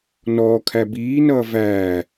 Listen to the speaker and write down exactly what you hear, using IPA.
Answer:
nɔːkʰæ biːnʌː væː

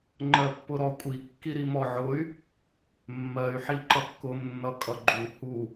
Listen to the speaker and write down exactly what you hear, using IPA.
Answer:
ŋ͡ǃɜpːʊɾɔkʷʼi kːiɾimɔʕʊy̯ | mːɜy̯ ħiǃʌkːʊm nːʌkʼʌɡ͡ǃu hu

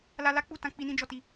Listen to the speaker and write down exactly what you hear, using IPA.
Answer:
la˧la˦k͡pu˦˨tã˧ k͡pi˦nĩ˦d͡ʒɔ˦˨ti˧

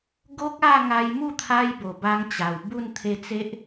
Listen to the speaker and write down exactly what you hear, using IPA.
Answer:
ɡo˦k̚ a˥˧ŋa˧jmu˥˧t̪ʰa˧j bo˨˩ba˧ŋt͡ɕa˨˩w bu˥˧n t̪ʰe˧t͡se˦ʔ

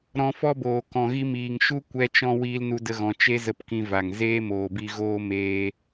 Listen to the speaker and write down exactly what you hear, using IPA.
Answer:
ɾɔ̃˧fɔ˦boː˨ kɔ̃˨ɣi˧miː˨ŋ ʃu˦ kʷɛ˧t͡ʃɔ̃˧ wiː˦lnu˦də˦ɣɔ̃˧ t͡ʃe˦zə˧pkĩ˧va˨ŋ zeː˦moː˨bi˧ɣoː˦ meː˦

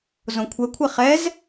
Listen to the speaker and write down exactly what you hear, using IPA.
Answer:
zõkʷʰɛkʷʰɛ χɛz

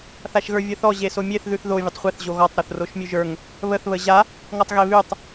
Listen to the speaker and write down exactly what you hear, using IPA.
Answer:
θaʃɣə˞vʲəθɔ ʑesomʲeθ ðʉθðo vʲətˤχʷeθ ʑoɣɔtˤ ɾoθroʃmʲʉʒə˞ŋ | βəθ βəʑa | ŋɔtˤɣeβʉtˤ

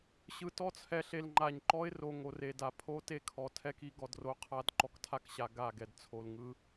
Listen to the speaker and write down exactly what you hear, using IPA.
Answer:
ɕɯ˨tɔ˦˨t͡sʰɛ˨ɬe˨l ŋ͡ǃa˨ɲǃɔ˦ɪ̯ ro˨ ŋo˨re˨ da˨pʰo˦te˦ kʰɔ˨tʰɛ˦ki˦ ɡɔ˨dro˦qʰa˦d ǃɔ˨ktʰa˦kɕa˨ ɡa˦˨ɡɛ˨d t͡sʰo˨lŋɯ˦

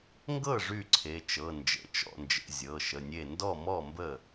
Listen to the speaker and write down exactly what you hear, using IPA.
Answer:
ŋɡɤ˥˩ ʐy˥˩ǀʰe˩˧˩t͡ʃɤ˩˧˩ nd͡ʒə̰˩˧˩t͡ʃɔ̰˥˩nd͡ʒə̰˩˧˩ zʲɤ˩˧˩ʃə˩˧˩nʲe˥˩ ndɔ˥˩mɔ˥˩mbə˥˩

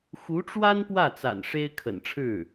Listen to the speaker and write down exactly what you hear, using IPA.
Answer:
xu˧˥ʈ͡ʂwa˥n pwä˥˩t͡sa̰˨˩n ʂe˥ɪ̯ kʰə̰˨˩nʈ͡ʂʰɻ̩˥˩

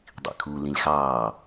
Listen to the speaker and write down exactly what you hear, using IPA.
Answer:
dˤḭkʰu lĩlʲxɑː

